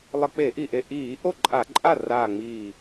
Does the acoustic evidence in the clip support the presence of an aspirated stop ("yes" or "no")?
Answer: no